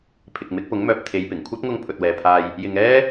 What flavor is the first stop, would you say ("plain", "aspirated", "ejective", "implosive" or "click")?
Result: aspirated